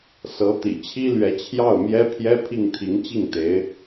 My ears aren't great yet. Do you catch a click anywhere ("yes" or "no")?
no